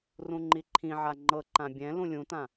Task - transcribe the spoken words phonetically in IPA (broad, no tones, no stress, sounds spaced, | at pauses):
r ũ ŋ͡ǃ i ǃʰ ĩ ʕ a ŋ͡ǃ ɤ ǃ ã bʲ ɛ̃ l ũ lʲ ũ t ã